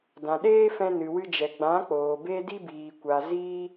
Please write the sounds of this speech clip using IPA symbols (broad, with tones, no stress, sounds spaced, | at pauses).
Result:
d ã˨ ɗ eː˦ f ɛ̃˧ n ɨ˨ w ɨ˧ d͡ʒ ɛ˨ ɡ͡b ã˨˦ k͡p oː˨ b e˦ d i˦ b iː˨ kʷ a˨ z iː˧